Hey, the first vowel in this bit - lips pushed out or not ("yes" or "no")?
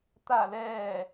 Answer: no